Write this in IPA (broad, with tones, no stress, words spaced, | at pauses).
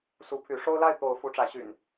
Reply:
su˨˦pʰy˨˦ ʂo˦ʊ̯la˥˨ɪ̯t̪o˨˦ʊ̯ fu˨˦ʈ͡ʂä˨˦ɕy̰˨˩n